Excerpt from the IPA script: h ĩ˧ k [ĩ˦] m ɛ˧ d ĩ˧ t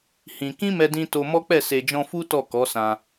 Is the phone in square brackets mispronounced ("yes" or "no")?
no